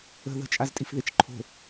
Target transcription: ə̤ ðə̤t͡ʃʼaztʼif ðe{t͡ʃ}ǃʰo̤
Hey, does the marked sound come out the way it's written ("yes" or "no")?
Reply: yes